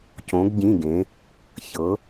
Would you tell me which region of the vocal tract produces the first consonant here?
palate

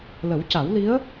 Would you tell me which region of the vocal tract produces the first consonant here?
tongue tip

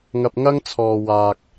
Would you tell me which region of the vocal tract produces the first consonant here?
velum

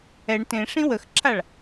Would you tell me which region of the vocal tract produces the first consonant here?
retroflex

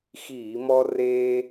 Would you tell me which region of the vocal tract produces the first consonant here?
velum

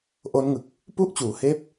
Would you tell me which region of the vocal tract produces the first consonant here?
throat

